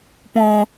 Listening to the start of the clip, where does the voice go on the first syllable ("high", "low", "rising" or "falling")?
high